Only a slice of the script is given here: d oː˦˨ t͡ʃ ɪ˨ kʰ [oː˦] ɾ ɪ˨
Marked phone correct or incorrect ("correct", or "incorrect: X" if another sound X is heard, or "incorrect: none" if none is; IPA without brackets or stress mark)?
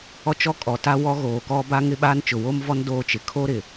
correct